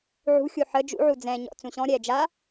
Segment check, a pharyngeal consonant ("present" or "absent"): present